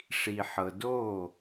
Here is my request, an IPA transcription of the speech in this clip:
ʂ i˨ ħ ɤ˨ d oː˦˨

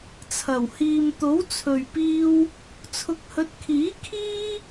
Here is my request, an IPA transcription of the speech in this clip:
t͡sʰ ɐ˨˩ w h iː˨ m t̪ o˨˥ w t͡sʰ ɵ˨ ɥ p iː˧ w | t͡sʰ ʊ˨˥ k̚ h ɵ˨˥ t̚ kʰ iː˨˥ kʰ iː˥

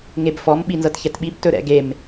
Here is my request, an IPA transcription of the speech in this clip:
ŋ e b f ɔ m ɓ i n z ɤ t ç ɛ t ɓ i b t ɵ ɾ ɛ̰ ɡ e m

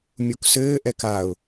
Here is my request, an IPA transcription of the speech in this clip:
mʲ u k s ɘː ʔ ɛ k a ʊ̯

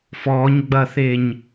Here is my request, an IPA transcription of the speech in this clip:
f ɔ ɲ ɡ͡b ɐ θ e ɲ

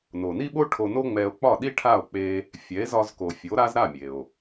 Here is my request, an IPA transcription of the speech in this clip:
n o˩ n i˥ ɓ o˥ ʈʰ o˧ n o˥ ŋ͡m ɛ˧ o̯ k͡p ɒ˥˩ ɗ i˥ ʈʰ a˥˩ o̯ k͡p e˧ | fʲ ɛ˩˥ e̯ z ɒ˧ z k o˩ fʲ o˩˥ ɾ a˥ z ɾ a˥˩ mʲ e˩ o̯

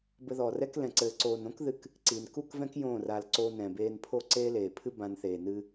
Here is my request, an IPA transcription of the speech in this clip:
b ɘ˧ ð ɔː˨ r ɛ˦ k l ɛ̃˨ ǀ ɘː˨ ǀ oː˨ n õ˦ k ð ɨ˧ k | ǀ i˨ n k u˦˨ k v ɛ̃˦ k j õː˦˨ r a˧ l ǀ oː˧ n ɛ̃˨ b eː˧ n pʰ o˦ ǀ eː˦ l eː˨ pʰ ɨ˦ b ã˧ n θ eː˨ n ɨ˦

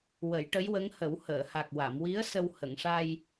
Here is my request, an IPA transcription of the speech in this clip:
w ə˨˩˦ j ʈ ə˧˥ j w ə˧˥ ŋ h ə˨˩˦ w h əː˨˩˨ h a˨˩ k̚ w a˨˩˨ m w i˧˥ ə̯ s ə˧ w h ə˨˩˨ ŋ ʂ a˧ j

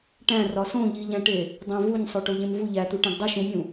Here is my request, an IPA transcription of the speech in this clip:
ʈ æ̃ r ɒ s õ ʎ i ʎ æ̃ ʈ e | dˤ æ̃ v u ɲ sˤ o ʈ o ʎ ẽ m v u ʎ æ t̪ u ʈ æ̃ ɡ dˤ i ʃ ũ mʲ ũ

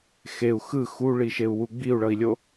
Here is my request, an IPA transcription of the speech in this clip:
x e u̯ x ɯ x u ɭ i ʃ e u̯ w u ɡ͡b i u̯ ɭ ʌ i̯ lʲ o

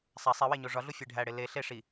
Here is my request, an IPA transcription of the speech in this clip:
sˤ æ sˤ i w e ɲ o ʐ ɒ ɮ u fʲ e ɖʱ æ ɽ e l e ɬ e ʂ i

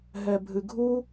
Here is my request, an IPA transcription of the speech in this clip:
ɦ ɛ bʱ ɨ ɡʱ u

